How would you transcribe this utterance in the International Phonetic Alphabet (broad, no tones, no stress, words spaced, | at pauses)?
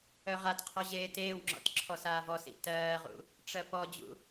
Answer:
œʁatqʰɔ ʑeːteːwŋ͡ǁɔ̰t ǁʰɔsaːvɔsḭ tɜːʁṵ | ʈ͡ʂɜpɔd͡ʑṵ